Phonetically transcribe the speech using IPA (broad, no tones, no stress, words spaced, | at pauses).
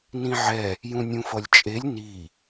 nĩʕɛ | jũnʲũfʌlʲt͡ʃʼelʲ ni